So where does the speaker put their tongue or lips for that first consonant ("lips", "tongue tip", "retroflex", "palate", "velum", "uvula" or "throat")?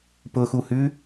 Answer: lips